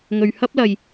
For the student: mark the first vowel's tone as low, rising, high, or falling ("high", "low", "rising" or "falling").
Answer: low